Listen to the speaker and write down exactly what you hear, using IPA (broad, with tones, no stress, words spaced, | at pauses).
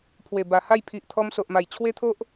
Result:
pʰwe˨˩ba˨˩ha˥˧j pʰi˨ʔt̪ʰɔ˧m so˨ʔma˨˩jt͡ɕʰwe˦t̪ʰo˦ʔ